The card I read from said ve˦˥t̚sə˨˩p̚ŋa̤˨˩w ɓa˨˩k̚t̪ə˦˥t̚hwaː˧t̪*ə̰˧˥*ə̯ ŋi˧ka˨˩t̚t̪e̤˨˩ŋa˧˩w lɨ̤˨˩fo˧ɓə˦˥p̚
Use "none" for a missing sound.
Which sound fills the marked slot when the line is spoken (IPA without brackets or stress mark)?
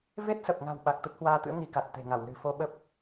ɨ̰˧˥